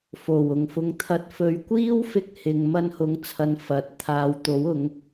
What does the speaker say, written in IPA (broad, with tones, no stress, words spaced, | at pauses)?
fo˨˩w ʊ˨˩ŋfʊ˨ŋt̪ʰɐ˨˥t̚fɵ˨˧ɥ kʷiː˥wfɪ˧k̚ hɪ˨ŋ mɐ˧nhʊ˨˥ŋt͡sʰɐ˨n fɐ˨˥t̚ t̪ʰaː˨wt̪o˨˥w ʊ˨˥ŋ